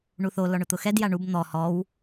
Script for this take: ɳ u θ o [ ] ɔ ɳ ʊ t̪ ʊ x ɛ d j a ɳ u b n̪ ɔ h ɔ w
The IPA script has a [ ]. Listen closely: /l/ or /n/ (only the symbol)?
l